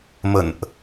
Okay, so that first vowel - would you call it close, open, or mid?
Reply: mid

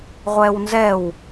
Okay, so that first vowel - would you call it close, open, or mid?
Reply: mid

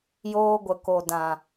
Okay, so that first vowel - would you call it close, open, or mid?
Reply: mid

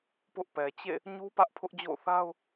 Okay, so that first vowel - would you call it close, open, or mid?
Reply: close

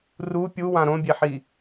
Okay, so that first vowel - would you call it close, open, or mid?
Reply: close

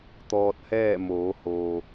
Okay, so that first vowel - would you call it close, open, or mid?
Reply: mid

